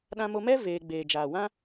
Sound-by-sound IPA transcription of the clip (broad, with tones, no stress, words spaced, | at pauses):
ɗã˧mo˧mɛ˦ veː˧ ɡ͡beː˨ d͡ʒaː˨wã˦